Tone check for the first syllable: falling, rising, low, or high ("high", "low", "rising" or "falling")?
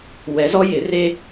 rising